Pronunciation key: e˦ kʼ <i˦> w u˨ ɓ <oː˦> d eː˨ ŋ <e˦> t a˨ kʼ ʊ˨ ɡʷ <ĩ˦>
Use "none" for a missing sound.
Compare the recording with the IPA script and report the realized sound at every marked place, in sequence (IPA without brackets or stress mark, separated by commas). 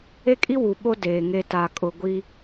i˦, o˦, e˦, i˦